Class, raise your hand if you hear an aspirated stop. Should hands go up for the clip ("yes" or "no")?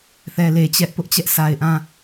no